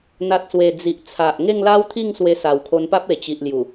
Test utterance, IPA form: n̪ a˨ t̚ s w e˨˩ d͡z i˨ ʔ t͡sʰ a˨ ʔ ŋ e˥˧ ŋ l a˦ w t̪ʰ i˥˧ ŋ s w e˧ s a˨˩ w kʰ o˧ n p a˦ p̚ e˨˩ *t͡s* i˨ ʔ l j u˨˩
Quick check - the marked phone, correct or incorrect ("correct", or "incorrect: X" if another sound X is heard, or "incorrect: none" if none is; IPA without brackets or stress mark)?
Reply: incorrect: t͡ɕ